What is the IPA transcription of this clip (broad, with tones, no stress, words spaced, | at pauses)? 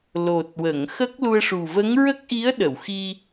lo˨˩t̚wə˨˩˨ŋxə˦˥k̚ lu˧ə̯ʂu˨˩ və˧˥ŋ ɹə˦˥k̚ʔi˧˥ə̯ ɗə˨˩˨wxi˧